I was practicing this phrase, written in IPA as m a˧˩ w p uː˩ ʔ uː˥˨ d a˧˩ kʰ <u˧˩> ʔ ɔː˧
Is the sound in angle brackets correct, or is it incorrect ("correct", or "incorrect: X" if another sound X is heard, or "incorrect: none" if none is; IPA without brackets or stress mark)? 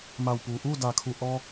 correct